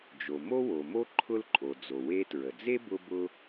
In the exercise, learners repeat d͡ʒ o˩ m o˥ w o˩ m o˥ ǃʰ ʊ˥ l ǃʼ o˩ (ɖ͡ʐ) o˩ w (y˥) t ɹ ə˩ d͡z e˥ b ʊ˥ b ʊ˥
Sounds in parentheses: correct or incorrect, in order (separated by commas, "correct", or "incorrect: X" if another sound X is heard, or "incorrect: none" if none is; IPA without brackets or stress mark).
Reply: incorrect: d͡z, incorrect: e˥